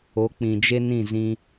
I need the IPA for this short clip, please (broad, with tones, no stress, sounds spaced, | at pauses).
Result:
o˨˦ k͡p ĩ˨ d͡ʒ e˦ n ĩ˦˨ z ĩ˧